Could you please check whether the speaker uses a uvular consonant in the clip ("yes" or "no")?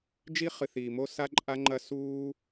yes